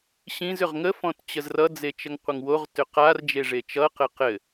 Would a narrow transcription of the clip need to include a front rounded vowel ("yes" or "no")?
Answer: yes